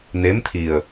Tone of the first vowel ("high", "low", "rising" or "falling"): rising